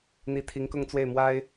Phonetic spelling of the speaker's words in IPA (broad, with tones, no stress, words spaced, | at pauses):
n̪i˧˥t̪ʰi˧˥ŋkʊ˥˧ŋt͡swe˥˩ɪ̯ mwa˥ɪ̯